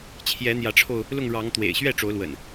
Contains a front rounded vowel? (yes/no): no